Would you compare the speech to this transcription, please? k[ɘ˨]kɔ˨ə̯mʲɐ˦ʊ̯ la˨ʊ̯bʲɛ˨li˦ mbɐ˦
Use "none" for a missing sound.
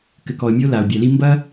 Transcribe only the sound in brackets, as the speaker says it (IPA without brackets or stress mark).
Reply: ɘ˨